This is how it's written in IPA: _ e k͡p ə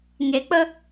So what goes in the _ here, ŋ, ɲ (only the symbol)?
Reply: ŋ